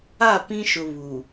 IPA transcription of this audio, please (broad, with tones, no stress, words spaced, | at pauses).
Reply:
a˦˨pĩ˦ʃʊ˨ βu˨